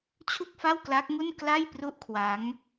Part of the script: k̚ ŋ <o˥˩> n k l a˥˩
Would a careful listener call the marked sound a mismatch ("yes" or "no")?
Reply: yes